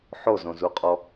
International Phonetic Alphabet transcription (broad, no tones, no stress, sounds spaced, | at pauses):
ħ o z õ z u qʼ ɔ